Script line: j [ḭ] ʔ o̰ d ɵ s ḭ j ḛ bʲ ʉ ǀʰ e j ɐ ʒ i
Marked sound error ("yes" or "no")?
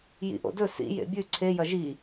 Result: no